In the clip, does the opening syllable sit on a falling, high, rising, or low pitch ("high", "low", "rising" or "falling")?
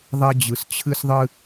high